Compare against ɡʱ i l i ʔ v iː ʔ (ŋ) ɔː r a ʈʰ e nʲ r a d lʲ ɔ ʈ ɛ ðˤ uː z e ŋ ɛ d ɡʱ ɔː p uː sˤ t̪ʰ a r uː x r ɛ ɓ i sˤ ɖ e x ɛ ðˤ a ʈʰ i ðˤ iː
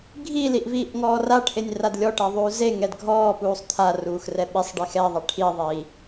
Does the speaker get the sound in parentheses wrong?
no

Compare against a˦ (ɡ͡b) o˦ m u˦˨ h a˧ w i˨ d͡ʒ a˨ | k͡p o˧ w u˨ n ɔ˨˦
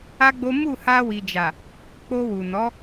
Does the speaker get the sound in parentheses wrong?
no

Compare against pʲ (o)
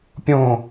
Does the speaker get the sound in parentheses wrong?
yes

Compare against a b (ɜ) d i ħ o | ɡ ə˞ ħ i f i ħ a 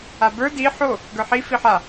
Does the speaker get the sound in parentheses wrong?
yes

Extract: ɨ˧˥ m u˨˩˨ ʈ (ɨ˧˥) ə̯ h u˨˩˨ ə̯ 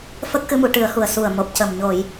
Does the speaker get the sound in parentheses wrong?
yes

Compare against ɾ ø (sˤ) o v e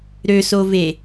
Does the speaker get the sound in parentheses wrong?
yes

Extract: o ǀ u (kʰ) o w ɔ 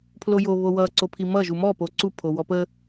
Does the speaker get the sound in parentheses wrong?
yes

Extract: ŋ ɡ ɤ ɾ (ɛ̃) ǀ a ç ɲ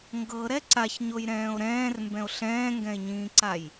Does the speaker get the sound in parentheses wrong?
yes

